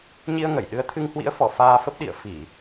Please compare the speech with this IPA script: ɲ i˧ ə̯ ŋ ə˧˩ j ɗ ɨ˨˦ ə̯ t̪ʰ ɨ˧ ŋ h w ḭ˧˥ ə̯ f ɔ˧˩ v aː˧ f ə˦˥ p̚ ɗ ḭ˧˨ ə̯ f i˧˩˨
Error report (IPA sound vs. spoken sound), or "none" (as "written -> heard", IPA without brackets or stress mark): v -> f